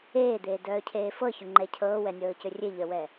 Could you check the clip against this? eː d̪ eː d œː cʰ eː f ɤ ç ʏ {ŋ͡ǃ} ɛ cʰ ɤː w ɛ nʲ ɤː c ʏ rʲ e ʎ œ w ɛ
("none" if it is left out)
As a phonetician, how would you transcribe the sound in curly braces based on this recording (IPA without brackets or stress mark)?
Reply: ŋ͡ǃ